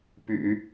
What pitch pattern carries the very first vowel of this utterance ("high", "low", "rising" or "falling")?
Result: low